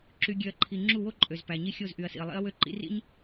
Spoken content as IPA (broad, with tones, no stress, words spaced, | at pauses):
ǁy˨ɡʲø˨ɐ̯ǃʰi˨ ŋ͡ǁu˦˨wo˦ ǃʼø˨zpæ˨ɲi˦ xʲo˦˨zʔy˨ɐ̯sḭ˨ɐ̯lˠḭ˦ɐ̯ wø˦ǃḭ˦rḭ˦ɲ